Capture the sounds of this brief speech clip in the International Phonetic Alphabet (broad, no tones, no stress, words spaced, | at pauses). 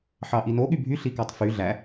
ħɑʔino ɠybʱy ɬikɑtˤfy ɮæ